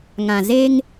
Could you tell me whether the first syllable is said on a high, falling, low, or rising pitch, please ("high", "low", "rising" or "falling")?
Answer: low